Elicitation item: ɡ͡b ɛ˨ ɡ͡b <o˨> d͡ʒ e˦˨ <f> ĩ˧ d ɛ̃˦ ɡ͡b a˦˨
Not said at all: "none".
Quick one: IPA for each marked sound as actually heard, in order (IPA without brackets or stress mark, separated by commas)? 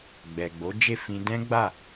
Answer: o˨˦, f